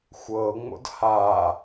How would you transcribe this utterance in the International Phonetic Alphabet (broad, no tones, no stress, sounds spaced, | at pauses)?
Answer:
xʷ ɤ ŋ͡m o̰ d h a